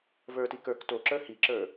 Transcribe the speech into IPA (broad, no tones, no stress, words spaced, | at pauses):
və˞ti kə˞k toǁə˞ hiǁə˞